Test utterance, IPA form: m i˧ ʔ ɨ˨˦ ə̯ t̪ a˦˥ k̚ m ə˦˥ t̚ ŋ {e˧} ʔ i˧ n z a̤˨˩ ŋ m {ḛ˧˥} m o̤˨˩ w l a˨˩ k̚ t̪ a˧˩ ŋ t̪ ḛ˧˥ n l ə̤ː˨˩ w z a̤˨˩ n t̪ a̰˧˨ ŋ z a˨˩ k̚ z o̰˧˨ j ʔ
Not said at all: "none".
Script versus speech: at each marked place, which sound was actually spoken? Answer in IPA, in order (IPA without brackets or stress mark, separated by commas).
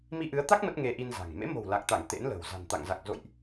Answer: e˧, ḛ˧˥